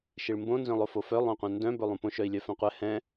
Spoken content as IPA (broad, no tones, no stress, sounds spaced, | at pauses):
ʃ i ɭ m b õ n z œ̃ lˠ o f o f œ lˠ õ qʷ œ̃ n d œ̃ b ɵ lˠ ũ p õ ʃ œ i̯ lʲ œ f œ̃ qʷ ɛ h ɛ̃